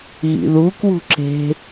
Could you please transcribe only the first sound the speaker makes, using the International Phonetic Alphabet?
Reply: ɣ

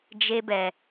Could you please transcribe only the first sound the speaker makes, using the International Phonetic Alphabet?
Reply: d͡ʒ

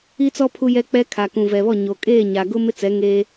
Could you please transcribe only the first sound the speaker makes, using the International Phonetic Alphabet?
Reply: i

